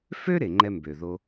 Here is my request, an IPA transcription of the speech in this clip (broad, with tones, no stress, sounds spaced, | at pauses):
f ø˥ ɾ e˩ ŋ͡ǃ ɛ˨ m b ø˩ ð o˨